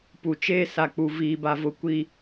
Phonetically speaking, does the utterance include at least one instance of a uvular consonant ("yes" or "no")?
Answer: no